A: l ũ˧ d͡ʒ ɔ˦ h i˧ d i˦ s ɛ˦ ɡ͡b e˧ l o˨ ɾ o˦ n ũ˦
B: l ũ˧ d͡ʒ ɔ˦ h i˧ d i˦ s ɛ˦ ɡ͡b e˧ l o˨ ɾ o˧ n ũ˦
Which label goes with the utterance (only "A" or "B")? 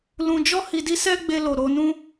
B